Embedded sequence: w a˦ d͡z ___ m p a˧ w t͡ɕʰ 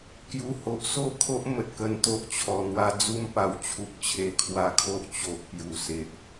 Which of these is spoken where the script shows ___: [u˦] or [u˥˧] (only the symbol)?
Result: u˦